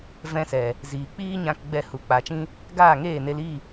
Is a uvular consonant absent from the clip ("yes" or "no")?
yes